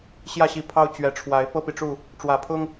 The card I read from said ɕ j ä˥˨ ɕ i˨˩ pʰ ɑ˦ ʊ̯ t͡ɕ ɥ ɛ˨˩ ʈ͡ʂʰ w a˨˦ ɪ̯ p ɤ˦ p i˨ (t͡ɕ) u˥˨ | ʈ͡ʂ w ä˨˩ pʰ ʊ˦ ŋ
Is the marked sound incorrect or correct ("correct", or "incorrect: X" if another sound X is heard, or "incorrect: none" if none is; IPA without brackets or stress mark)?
incorrect: ʈ͡ʂ